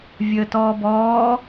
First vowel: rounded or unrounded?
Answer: unrounded